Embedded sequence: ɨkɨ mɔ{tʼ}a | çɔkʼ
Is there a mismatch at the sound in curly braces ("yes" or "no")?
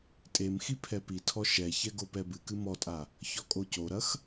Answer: no